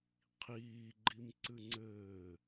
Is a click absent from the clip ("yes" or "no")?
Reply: no